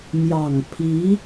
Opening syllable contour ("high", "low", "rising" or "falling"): low